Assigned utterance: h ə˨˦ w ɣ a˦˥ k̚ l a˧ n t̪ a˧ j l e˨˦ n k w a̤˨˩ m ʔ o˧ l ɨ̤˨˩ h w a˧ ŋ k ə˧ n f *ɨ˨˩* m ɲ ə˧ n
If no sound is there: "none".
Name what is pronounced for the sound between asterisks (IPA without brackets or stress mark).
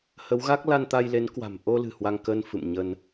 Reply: ɨ̰˧˨